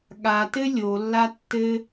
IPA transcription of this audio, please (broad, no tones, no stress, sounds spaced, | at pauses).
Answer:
ɠ a t ɘ lʲ o lː a tː ɘ